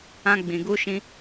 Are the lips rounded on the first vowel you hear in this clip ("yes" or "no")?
no